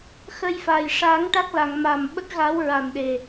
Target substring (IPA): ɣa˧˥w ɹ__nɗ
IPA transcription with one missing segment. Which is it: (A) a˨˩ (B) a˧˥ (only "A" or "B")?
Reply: A